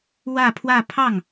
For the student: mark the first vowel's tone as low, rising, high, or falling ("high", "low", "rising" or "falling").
falling